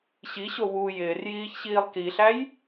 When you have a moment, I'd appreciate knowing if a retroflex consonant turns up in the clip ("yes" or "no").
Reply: no